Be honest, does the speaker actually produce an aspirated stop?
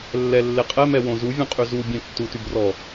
no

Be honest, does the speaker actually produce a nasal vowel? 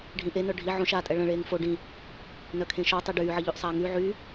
yes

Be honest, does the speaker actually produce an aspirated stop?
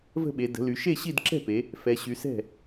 no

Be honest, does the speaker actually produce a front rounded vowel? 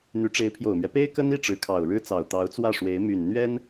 yes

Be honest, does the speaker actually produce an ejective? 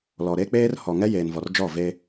no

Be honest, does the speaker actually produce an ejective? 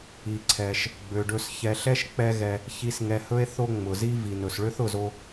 no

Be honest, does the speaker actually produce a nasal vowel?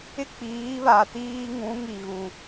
yes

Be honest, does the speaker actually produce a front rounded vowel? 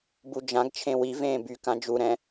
yes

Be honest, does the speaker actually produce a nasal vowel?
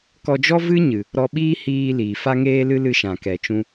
yes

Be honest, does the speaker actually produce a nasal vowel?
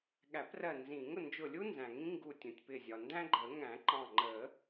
yes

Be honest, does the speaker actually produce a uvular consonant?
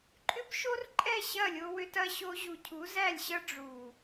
no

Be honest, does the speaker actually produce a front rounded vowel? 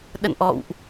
no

